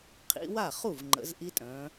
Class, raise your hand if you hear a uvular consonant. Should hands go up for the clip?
yes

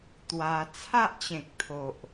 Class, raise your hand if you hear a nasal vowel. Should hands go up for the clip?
yes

